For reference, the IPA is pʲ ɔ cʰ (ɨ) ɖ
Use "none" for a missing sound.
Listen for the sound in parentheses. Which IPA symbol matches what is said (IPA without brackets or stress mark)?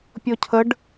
ə